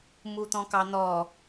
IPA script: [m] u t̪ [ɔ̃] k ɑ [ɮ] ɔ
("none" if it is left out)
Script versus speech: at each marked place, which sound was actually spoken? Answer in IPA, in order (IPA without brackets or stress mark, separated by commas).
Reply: m, ɔ̃, n̪